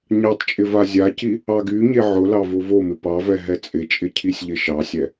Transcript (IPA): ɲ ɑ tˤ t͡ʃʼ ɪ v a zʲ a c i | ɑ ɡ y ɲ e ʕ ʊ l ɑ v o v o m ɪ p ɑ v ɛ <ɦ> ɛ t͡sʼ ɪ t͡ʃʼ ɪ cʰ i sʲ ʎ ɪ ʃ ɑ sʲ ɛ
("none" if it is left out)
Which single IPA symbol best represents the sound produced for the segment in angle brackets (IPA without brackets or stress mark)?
ɦ